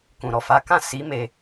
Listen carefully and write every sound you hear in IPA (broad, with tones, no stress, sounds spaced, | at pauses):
k ũ˨ ɾ ɔ˨ f a˨˦ k ã˦˨ s i˨˦ m e˧